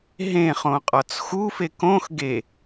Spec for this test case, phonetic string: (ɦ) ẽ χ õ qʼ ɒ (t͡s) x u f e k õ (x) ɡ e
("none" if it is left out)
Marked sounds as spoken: ɦ, t͡s, x

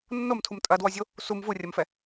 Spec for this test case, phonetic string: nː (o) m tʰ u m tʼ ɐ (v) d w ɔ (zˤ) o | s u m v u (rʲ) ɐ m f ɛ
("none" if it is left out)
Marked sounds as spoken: o, none, zʲ, rʲ

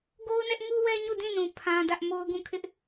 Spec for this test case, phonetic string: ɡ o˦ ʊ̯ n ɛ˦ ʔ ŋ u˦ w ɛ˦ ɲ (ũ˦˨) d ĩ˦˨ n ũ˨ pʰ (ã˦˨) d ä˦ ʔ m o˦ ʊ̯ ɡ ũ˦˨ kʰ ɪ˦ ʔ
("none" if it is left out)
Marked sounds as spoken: u˦˨, ã˦

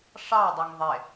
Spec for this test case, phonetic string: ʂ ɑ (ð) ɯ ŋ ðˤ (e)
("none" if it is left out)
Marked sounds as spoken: dˤ, e

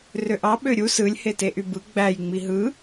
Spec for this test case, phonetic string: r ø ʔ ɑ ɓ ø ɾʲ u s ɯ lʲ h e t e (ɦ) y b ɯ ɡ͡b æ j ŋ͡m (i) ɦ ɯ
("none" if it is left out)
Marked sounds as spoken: ʔ, i

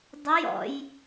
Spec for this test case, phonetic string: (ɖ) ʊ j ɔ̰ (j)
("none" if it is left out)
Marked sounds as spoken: dˤ, j

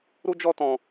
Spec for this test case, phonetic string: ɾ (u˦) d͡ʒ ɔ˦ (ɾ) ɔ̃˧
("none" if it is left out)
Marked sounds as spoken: u˦, t

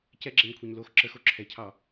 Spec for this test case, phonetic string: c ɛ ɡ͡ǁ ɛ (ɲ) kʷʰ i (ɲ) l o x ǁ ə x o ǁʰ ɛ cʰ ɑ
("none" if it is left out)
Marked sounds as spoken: ɲ, ɲ

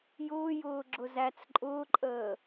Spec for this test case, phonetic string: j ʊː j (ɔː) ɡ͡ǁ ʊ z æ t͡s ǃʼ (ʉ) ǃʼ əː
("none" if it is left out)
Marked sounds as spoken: ʊː, ʊ

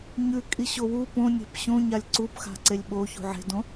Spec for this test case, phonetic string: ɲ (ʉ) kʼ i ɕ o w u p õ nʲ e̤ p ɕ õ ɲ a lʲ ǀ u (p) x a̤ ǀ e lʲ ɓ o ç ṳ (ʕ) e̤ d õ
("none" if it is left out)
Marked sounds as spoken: ʉ, p, ʕ

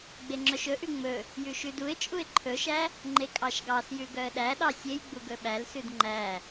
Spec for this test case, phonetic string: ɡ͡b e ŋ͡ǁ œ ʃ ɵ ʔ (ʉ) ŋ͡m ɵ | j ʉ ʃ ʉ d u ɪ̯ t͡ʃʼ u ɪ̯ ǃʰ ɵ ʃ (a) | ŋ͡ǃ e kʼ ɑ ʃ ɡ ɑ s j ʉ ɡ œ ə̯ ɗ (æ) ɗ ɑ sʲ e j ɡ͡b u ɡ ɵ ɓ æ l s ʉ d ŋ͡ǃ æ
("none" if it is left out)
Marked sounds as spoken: ʉ, æ, æ

